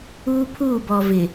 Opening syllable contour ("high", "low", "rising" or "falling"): high